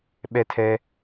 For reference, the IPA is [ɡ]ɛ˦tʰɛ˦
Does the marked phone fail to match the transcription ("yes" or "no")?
yes